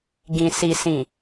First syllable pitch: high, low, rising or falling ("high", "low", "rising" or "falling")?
low